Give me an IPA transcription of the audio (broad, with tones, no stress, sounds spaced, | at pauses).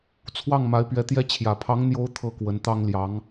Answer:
t͡sʰ w ɑ˥˩ ŋ m a˧˥ ɪ̯ p ɥ ɛ˧˥ t̪ j ɛ˥ t͡ɕʰ j ä˨˩ pʰ ɑ˧˥ ŋ n̪ j o˧˥ ʊ̯ t̪ʰ ɤ˥˩ k w ə˧˥ n t̪ ɑ˥ ŋ l j ɑ˧˥ ŋ